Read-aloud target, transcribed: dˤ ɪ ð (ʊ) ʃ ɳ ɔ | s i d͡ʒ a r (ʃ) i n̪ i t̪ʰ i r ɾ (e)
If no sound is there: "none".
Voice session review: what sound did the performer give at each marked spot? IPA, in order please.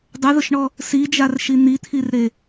ʊ, ʃ, e

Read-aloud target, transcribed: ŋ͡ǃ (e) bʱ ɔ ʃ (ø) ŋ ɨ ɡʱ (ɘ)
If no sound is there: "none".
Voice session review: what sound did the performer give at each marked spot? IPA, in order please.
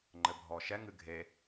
ɘ, ɛ, e

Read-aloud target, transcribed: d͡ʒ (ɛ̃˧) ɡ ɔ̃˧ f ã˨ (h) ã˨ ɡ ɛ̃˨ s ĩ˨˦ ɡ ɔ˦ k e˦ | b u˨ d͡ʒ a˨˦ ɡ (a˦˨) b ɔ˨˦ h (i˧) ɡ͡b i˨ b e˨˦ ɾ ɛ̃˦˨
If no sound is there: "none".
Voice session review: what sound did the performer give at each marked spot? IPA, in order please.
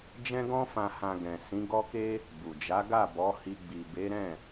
ɛ̃˧, h, a˦˨, i˧

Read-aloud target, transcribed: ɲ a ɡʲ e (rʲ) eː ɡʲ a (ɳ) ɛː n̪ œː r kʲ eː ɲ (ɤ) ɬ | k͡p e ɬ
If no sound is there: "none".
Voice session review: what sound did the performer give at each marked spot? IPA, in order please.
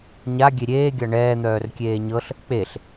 ɾʲ, ɳ, ɤ

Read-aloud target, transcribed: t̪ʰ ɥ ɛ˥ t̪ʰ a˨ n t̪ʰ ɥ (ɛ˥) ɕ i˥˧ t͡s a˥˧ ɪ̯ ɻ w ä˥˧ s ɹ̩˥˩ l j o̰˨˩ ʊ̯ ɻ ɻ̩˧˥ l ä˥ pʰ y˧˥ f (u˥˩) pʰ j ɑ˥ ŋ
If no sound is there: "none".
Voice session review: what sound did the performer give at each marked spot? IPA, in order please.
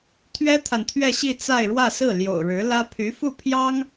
ɛ˥˧, u˥˩

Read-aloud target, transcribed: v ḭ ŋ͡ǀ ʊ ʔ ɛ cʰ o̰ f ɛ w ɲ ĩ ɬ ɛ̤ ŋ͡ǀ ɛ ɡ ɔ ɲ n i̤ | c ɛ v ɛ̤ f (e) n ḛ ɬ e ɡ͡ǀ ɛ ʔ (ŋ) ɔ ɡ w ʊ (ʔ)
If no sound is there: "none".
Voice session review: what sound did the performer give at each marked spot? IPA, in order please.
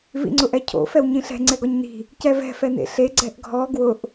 ɛ, ɡʱ, ʔ

